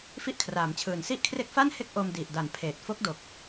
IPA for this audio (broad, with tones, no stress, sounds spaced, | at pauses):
f i˥˩ ʔ kʰ r aː˩˦ m t͡ɕʰ ɯː˨˩ n s i˥˩ ʔ kʰ r e˥˩ k̚ f a˥˩ n h e˥˩ k̚ ʔ o˧ m d i˨˩ ʔ d a˨˩ n pʰ eː˨˩ t̚ f o˦˥ k̚ d o˨˩ k̚